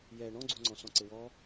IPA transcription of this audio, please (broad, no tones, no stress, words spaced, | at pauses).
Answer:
jɛ ɳɔ̃ɡ͡ǀuŋ͡ǀɔ̃ sɔ̃ǀɪwɔ